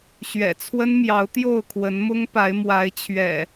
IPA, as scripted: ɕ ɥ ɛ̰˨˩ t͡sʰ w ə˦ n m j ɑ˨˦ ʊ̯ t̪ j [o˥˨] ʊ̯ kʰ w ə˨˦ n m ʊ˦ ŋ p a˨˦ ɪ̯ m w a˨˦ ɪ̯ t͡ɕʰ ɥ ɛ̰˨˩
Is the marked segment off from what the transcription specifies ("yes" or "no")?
no